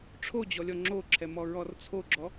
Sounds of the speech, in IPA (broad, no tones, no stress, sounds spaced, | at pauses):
ʈ͡ʂʰ o d͡ʑ ɔ lʲ ɔ ŋ͡ǁ o ǁʰ ɛ m ɔ ɹ ɔ r t͡sʰ o ɡ͡ǁ ɔ